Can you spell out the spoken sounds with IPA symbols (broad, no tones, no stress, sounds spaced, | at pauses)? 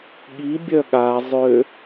ɠ i bʲ œ ɠ a zˤ ø